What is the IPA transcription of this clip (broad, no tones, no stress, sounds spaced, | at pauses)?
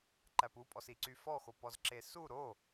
ǃ æ p u pʼ ɔ s i ǀ y f ɔ x o p ɔ z ǁ e s u ɾ o